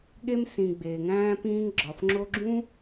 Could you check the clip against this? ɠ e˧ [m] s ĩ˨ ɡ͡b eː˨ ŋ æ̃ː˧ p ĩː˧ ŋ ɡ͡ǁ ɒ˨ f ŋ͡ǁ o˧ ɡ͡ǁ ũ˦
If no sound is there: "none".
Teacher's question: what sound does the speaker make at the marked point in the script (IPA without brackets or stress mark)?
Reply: m